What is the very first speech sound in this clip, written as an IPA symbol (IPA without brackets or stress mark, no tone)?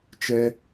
t͡ʃ